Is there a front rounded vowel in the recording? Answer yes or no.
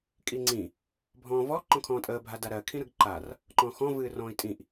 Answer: no